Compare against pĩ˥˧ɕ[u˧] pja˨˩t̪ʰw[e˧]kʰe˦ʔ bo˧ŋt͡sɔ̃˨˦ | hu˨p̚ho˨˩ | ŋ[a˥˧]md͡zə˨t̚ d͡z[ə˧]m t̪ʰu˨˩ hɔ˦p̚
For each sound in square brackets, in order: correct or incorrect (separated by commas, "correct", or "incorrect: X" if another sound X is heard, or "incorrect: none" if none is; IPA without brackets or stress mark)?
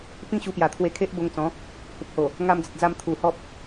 correct, correct, incorrect: a˧, incorrect: a˧